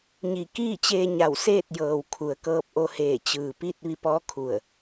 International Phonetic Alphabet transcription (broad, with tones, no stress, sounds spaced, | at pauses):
ɲ i˧˩ k iː˥˨ t͡ɕ eː˧ ɲ a˧˩ w s eː˥˨ t̚ j ɤː˩ w kʰ u˩ ə̯ k ɤː˧ p̚ ʔ o˧ h eː˧˩ t͡ɕ ɯː˩ p i˥˨ t̚ ʋ i˧ p ɔː˧˥ kʰ u˧˩ ə̯